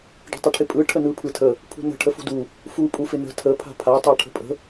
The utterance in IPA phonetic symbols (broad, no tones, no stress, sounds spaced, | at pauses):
ɖ ə̤ tˤ ɪ ʈʰ ɪ pʼ ɯ ʈʰ ə n ɯ pʰ ɯ tʰ ə | pʰ ṳ n ə̤ ʈʰ ə f ṳ d u | f u pʼ u f ɪ n ə̤ tʰ ə pʰ a̤ pʰ a tˤ a ʈʰ ə̤ pʼ ə̤